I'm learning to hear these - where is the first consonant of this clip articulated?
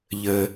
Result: palate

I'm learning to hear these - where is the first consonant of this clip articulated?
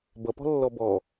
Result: lips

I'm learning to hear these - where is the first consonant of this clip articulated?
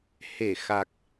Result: throat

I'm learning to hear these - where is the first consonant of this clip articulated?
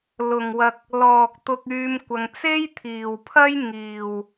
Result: tongue tip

